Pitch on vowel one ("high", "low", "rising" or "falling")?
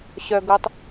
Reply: low